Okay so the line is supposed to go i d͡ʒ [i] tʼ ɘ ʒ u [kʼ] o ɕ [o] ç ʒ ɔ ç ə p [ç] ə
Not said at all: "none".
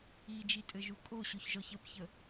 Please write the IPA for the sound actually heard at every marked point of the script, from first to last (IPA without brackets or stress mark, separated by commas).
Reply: i, kʼ, o, ç